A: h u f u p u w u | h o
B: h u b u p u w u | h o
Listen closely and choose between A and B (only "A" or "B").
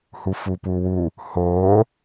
A